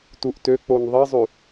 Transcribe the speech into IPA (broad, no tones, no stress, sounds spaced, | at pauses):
t u ʔ t ø k͡p o n ðˤ i zˤ y